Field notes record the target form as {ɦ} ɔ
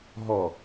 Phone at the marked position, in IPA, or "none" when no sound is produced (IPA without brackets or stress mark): ɦ